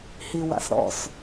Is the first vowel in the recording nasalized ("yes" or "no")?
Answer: no